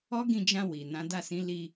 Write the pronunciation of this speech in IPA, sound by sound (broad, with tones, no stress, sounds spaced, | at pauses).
ɔ˦ ɡ ĩ˦˨ d͡ʒ ã˧ w i˨ n ã˨˦ d a˦˨ s ĩ˨˦ l i˧